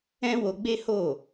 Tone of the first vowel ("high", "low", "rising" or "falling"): high